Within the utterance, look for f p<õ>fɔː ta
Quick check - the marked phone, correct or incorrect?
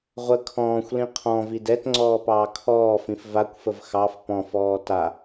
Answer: incorrect